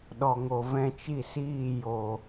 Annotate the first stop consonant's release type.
implosive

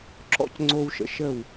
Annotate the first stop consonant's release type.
click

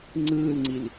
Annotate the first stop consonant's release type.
click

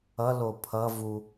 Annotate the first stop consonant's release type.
aspirated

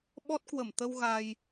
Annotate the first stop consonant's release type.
implosive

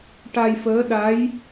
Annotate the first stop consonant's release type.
plain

